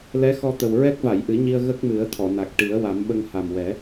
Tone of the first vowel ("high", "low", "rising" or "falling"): rising